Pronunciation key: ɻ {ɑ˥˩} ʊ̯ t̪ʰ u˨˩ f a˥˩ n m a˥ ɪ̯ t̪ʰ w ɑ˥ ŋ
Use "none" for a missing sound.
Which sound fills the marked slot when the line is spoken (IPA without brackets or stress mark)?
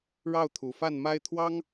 ɑ˥˩